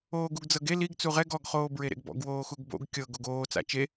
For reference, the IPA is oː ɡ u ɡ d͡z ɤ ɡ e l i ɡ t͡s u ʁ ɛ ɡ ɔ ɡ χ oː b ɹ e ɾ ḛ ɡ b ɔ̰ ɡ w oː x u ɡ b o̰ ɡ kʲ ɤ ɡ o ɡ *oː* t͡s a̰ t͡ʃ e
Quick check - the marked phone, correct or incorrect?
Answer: correct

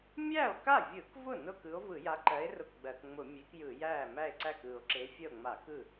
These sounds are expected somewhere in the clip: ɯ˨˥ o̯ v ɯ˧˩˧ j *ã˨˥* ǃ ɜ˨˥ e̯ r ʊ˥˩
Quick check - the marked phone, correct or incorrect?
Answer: incorrect: a˨˥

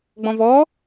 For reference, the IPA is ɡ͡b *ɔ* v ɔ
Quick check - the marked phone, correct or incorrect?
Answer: incorrect: ɔ̃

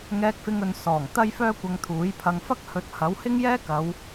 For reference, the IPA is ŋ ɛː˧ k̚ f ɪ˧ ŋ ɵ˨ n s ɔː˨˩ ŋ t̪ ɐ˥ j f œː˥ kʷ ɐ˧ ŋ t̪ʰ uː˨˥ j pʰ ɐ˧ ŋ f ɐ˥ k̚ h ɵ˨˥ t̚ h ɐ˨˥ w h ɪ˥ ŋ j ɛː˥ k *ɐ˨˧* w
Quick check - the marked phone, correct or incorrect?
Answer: correct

